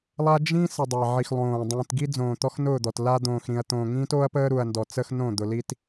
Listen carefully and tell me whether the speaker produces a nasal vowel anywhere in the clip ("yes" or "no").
yes